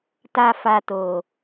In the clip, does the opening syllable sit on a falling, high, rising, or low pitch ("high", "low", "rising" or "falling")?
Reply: high